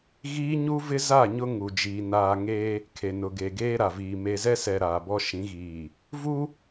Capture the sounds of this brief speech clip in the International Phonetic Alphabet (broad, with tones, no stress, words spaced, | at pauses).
ɣiː˦ɲu˦vɪ˦za˦˨ ɲʊ˦ŋu˨d͡ʒiː˨ naː˨ŋeː˦ | kʰe˨nʊ˨ɡe˨ ɡeː˦ɾa˨viː˨ me˨zɛ˦sɛ˨ ɾaː˨bɔ˦ʃĩ˨˦ɣiː˨ | vu˦